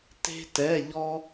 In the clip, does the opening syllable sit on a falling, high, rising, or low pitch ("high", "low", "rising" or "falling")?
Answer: high